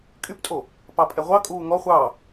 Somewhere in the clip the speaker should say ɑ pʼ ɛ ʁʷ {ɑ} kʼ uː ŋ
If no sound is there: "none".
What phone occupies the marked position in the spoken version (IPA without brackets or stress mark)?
ɑ